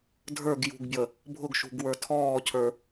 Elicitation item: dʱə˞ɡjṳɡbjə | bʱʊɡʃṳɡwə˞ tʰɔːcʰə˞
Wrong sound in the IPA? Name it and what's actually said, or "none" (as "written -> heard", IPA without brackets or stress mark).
none